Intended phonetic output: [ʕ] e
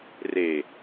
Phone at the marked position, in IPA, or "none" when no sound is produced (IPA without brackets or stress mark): r